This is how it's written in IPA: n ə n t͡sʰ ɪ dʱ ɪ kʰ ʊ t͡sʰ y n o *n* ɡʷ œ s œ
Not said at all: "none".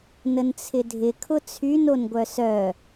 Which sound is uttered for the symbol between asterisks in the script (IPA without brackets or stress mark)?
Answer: n